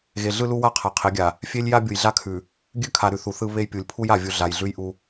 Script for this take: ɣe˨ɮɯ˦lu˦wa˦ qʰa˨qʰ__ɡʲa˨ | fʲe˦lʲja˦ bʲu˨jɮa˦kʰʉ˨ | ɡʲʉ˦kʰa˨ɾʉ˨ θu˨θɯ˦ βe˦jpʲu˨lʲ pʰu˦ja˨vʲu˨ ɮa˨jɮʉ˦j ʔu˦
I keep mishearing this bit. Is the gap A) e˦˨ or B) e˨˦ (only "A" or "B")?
B